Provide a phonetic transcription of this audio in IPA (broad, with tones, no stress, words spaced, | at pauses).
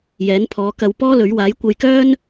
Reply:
jɛː˨˥npʰɔː˨˧kɐ˧w pɔː˥lɵ˨˥ɥ waː˨˥jkʷɐ˧jkœː˥n